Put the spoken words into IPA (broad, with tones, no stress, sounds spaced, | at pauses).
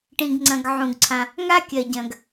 ʈ ĩ˩ ɡ ŋ͡ǀ ɐ̃˩ ɡ ʕ ũ˩ ɡ ǀʰ ã˩ | ŋ a˥ kʲ ɐ˩ ɟ ɐ̃˩ ɡ